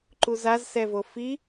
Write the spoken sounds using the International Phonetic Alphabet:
ǃ u z a z s ɛ v o f i

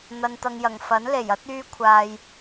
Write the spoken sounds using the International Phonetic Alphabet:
n̪ ɐ˨ n t̪ ɐ˨ ŋ j ɐ˨˩ ŋ f ɐ˨˥ n l e˨˩ j ɐ˨˥ t̚ yː˧ kʷʰ aː˨ j

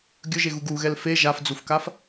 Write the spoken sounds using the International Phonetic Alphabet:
ɡʲ ɵ ʒ e ɣ u ɡ u ɣ ɛ l f e ʒ a f d͡z u f k a f

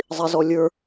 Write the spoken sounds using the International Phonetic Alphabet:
zˤ i z ɔ lʲ ə˞

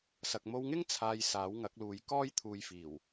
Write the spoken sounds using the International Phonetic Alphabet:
s ɐ˨ k̚ m o˧ w ŋ ɪ˥ ŋ t͡sʰ aː˧ j s aː˨˥ w ŋ ɐ˨˥ k̚ l uː˨˧ j k ɔː˥ j t̪ʰ uː˧ j f iː˨˩ w

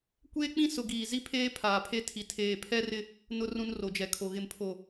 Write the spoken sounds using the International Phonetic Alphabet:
kʷ eː˦ k͡p ĩ˦ s ʊ˨ ɡ iː˨ z i˦ pʰ eː˦ pʰ aː˨ pʰ e˦ tʰ i˨ tʰ eː˨ pʰ ɛ˦ r ɪ˦ | n ʊ˦ r ũ˦ n r o˨ d͡ʒ ɛ˨ kʰ o˨ ɣ ɪ˨ m pʰ o˨

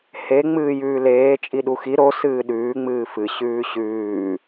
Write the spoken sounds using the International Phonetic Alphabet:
h e ŋ͡m ɨː j ʉː l eː t͡ʃʼ i ɗ u x i ɾ o s ɨː ɗ ʉː ŋ͡m ɨː f ɨ ɕ ʉː ɕ ʉː

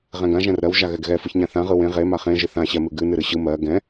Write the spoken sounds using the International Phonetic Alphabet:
ʁ ɛ̃ ɡ ã ʒ ɛ̃ r ɾ ɜ w ʒ a ɣ ɛ ɡ ɣ ɛ f ɯ ç ɲ ã θ ã ʁ ɯ w ẽ ʁ e m a χ ẽ ʒ ɨ θ ã ɕ ɛ m ɨ ɡ ɨ n ɨ ɾ ɨ ɕ ɯ m ɜ ɡ ɛ̃

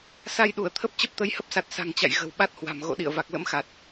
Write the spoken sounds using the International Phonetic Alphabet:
s a˧ j ɗ u˧˩ ə̯ t̪ʰ ə˦˥ p̚ t͡ɕ ə˦˥ p̚ t̪ ə˨˦ j h ə˦˥ p̚ s a˨˩ t̚ s a̤˨˩ ŋ t͡ɕ a̰˧˨ j ɣ ə̤˨˩ w ɓ a˦˥ t̚ h w a̤˨˩ m ɣ o̰˧˨ ɗ ḭ˧˨ ə̯ v a˨˩ k̚ l ə̰˧˥ m x a˨˩ t̚

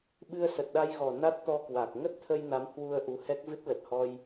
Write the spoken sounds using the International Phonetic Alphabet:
ɓ ɨ˧ ə̯ s ə˨˩ t̚ ɗ a˧ j ɣ ɔ˨˩ n a˦˥ t̚ t̪ ɔ˧ k w a˨˩ k̚ ŋ ə˦˥ t̚ t̪ʰ ə˧ j n a˨˦ m h w u˧ ə̯ ʔ u˨˦ h ɛ˦˥ k̚ v ɨ˦˥ t̚ l ə˨˩ t̚ h ɔ˧ j

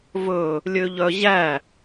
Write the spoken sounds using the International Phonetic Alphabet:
v ɵ | lʲ ø ʎ œ ʑ æ

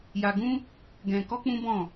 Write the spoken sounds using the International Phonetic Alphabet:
j a˧ ɡ ũ˦ | ɡ ɛ̃˧ k ɔ˦ k͡p ũ˦ b ɔ̃˦˨

